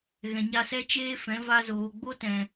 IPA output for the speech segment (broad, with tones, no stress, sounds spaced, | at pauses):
ɣ ɛ̃˨ ɲ a˧ s ɛ˦ t͡ʃ eː˦ f ɛ̃˨˦ v a˧ z oː˨ ɡ͡b o˦ t ɛ̃˨